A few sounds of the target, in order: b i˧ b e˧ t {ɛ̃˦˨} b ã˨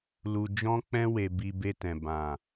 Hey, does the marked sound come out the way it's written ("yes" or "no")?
no